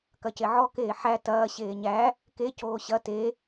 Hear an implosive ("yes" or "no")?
no